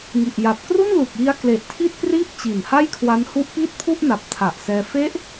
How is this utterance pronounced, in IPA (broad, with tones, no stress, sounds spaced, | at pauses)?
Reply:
ŋ i˨˩ ʔ j a˨˩ p̚ k r u˥˩ n l u˨˩ k̚ j i˧ a̯ k l e˨˩ ʔ tʰ i˥˩ t̚ p r iː˥˩ p̚ t͡ɕ i˨˩ n h a˥˩ j kʰ w a˦˥ n h u˦˥ ʔ p iː˥˩ t̚ pʰ u˥˩ ʔ n a˨˩ p̚ tʰ a˨˩ ʔ s ɛː˧ f e˦˥ ʔ